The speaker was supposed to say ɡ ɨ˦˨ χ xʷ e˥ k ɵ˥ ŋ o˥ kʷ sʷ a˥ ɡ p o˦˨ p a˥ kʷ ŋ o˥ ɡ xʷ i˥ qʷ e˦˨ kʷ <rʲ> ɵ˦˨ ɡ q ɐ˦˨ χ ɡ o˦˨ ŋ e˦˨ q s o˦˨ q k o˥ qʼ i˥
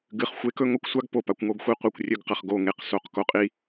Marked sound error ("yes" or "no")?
no